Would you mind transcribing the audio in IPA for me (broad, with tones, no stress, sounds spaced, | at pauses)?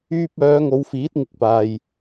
yː˧ p̚ œː˨˧ ŋ o˨˧ w f iː˨˥ t̚ ŋ ɪ˨˥ k̚ p aː˨ j